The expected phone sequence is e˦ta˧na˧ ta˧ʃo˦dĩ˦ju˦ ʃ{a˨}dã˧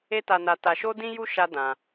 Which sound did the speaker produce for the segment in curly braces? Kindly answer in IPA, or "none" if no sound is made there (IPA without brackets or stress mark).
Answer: a˦